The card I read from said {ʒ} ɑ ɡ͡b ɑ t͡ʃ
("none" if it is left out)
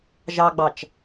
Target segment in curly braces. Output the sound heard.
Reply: ʒ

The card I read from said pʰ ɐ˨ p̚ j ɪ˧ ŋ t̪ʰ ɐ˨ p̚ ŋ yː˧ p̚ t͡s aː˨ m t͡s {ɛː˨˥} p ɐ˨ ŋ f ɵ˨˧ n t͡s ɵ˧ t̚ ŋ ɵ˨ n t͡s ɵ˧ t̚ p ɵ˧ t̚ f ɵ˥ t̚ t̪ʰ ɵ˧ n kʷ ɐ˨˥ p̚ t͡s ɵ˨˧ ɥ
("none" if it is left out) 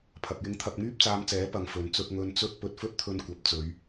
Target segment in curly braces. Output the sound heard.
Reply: ɛː˨˥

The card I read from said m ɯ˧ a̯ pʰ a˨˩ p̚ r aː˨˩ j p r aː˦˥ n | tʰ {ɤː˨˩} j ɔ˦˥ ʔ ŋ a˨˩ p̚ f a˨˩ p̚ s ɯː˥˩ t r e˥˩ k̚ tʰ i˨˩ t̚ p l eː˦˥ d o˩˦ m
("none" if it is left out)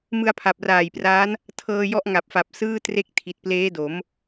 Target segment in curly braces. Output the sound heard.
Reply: ɤː˧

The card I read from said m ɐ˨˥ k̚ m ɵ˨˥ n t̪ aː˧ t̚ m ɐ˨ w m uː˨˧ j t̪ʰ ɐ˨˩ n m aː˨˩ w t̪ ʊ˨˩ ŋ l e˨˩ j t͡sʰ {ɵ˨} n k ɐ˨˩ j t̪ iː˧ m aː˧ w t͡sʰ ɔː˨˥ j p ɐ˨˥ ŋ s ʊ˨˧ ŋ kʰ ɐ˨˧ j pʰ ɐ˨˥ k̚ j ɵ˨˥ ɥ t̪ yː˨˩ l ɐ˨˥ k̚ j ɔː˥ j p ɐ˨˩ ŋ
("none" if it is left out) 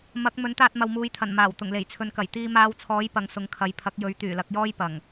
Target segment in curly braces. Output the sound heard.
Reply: ɵ˨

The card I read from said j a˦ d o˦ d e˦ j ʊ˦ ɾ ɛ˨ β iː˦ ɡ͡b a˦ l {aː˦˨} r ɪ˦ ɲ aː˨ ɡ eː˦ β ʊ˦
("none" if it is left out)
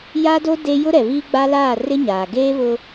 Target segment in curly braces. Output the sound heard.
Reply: aː˦˨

